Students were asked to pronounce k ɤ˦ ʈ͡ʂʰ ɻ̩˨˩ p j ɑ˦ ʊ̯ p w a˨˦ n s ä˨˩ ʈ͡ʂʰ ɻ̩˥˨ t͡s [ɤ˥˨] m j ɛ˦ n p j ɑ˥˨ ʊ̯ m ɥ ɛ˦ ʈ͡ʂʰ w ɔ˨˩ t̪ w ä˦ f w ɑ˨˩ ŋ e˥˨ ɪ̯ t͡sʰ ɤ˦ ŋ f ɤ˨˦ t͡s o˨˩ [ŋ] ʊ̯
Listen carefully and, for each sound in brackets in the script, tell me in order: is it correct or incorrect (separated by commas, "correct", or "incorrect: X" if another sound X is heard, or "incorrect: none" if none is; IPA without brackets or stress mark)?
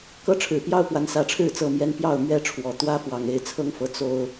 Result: correct, incorrect: none